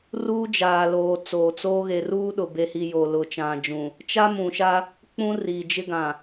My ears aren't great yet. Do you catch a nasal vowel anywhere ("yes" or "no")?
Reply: yes